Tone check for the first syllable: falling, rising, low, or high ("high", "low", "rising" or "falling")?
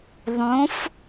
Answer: rising